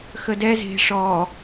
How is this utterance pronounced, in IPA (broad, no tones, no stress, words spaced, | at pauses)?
xədɛ ze̤ʂɔ